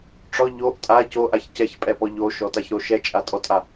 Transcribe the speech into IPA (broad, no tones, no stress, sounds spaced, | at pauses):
ʈ͡ʂ ɔ ʎ o ʔ tʼ a c o ʔ a ç c ɛ ç pʼ ɛ p ɔ ʎ o ʃ ɔ t a ç ɾ o ʃ ɛ t͡ʃʼ a tʼ ɔ tʼ a